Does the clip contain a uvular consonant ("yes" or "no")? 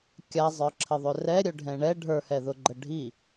no